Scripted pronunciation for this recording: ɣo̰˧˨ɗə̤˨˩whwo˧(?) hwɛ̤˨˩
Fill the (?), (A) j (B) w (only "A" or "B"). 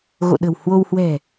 B